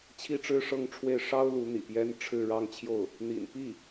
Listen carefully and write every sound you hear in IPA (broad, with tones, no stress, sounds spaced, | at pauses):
t͡ɕʰ i˥ ʈ͡ʂ ɻ̩˥ ʂ ɤ˥˧ ŋ ʈ͡ʂʰ w e˥˩ ɪ̯ ʂ ɑ˥ ʊ̯ l u˧˥ n̪ ḭ˨˩ p j ɛ˥ n ʈ͡ʂʰ ɻ̩˥˧ ɻ ɑ˥˧ ŋ t͡ɕʰ j o˥˩ ʊ̯ | n̪ ḭ˨˩ n p i˥˩